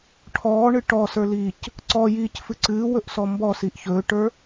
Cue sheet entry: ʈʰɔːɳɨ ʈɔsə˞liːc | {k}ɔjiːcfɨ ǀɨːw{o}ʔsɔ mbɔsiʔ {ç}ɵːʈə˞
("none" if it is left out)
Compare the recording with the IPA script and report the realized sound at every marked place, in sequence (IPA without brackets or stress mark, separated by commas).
ǀ, ɵ, ç